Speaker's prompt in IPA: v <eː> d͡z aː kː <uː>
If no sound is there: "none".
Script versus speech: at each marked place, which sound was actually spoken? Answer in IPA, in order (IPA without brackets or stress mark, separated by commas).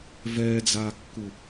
ɛː, u